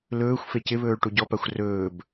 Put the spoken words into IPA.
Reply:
l ɵː xʷ f e c ɪ β ɵː ɭ ʈ u ɟ ɔ p a xʷ r ɵː b

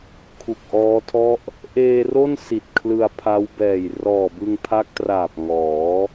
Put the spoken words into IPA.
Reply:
kʰ u˨˩ k̚ ʔ ɔː˦˥ tʰ ɔ˥˩ ʔ | ʔ eː˧ r o˥˩ n s i˨˩ t̚ kʰ l ɯ˧ a̯ pʰ a˦˥ w b ɛː˨˩ j r ɔː˨˩ b ɯ˧ ŋ pʰ a˦˥ k̚ t r aː˨˩ p̚ ŋ ɔː˩˦

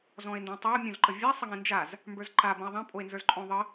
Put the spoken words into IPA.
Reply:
z ɔ̃ e̯ n d ẽ tˤ o mʲ õ z ǃ ə vʲ a sˤ ə ŋ ẽ n d͡ʒ a z | m b ə˞ z ǃ a b ə̃ e̯ ðˤ ã pʼ o e̯ n z ə˞ z ǃʼ õ ðˤ ə

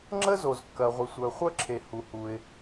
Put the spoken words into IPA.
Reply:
ŋ͡ǁ ə˥ z o˩ z kː ɐ˩ ʁʷ ɪ˩ sʷ œ˩ χʷ œ˥ ǁʰ e˩ h u˩ h u˩ ɪ̯

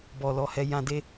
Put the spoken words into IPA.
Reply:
b ɔ˨ l ɔ˨˦ h ɛ˧ j ã˧ d e˦

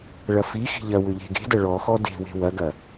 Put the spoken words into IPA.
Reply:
ɭ ɐ f i x i̤ ʎ ɐ w ʏ ʎ e̤ ɡ e̤ d ɐ ɭ ɔ x ɔ d e̤ w e̤ w ɐ ɡ ɐ

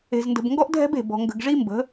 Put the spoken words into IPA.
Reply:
e̤˨ z n d ə̤˨ b ŋ ɡ ɔ˦ ʔ dʱ ɛ̤˦ b e̤˨ b ɔ̤˨ ŋ ɡ ə̤˨ ɡ ʐ i˦ m b ə̤˨˦

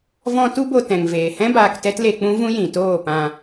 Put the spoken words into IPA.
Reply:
v ɔ̃˧ t u˦ b o˧ t ɛ̃˨ ŋ v eː˨ h ɛ̃˦ b aː˧ k t ɛ˦ t l e˧ k͡p ũ˦ v ũ˦ j ĩ˨ t oː˦˨ p ã˧

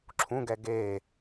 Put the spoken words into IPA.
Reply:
ǁʰ ũ ɡ ɛ ɡ e

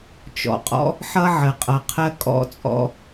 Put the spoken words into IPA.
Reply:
t͡ʃ ɔ̰˨ qʼ ɔ̰˦ | ħ ʌ˦ ʕ ə˨ qʼ ʌ˨ qʰ ɜ˦ kʼ ɔ̰˦ t͡sʼ ɔ̰˦

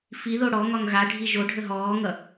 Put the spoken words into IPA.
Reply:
f i ð o ɽ ɔ ŋ ɒ ŋ ɣ a ɖʱ i ʒ o ɖʱ ə ɦ ɔː ŋ ʌ

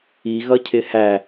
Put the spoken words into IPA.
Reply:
i ɣ ʌ cʰ ɪ h æ

